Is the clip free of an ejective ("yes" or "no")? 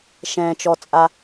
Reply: no